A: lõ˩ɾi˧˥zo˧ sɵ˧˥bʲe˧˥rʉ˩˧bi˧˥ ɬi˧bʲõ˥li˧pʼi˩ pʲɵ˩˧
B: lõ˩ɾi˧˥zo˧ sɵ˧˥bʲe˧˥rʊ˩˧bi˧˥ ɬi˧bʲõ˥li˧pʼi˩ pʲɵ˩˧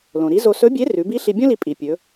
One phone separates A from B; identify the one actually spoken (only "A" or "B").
A